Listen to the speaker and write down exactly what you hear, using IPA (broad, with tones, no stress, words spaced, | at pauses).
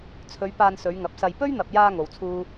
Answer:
t͡sʰɵ˨˧ɥ paː˧nsɵ˨˧ɥŋɐ˨˥p̚sɐ˧j pɵ˥ɥn̪ɐ˨p̚jaː˧ ŋo˨wt͡sʰuː˥